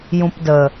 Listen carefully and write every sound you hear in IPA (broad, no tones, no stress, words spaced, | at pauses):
jũpdə